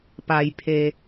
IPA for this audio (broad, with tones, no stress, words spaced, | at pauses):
pa˩jpʰeː˩